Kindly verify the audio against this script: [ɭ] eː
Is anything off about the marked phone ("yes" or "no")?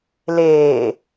yes